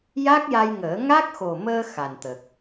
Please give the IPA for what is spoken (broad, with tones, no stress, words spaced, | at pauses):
ja˦˥k̚ja˧jŋəː˨˩˦ ŋa˦˥k̚xo˨˩məː˧ xa˨˩nt̪ə˨˩k̚